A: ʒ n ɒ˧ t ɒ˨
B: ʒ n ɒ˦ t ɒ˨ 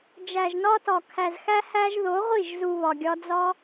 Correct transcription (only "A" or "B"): B